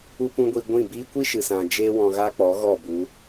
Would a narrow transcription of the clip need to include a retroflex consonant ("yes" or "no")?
no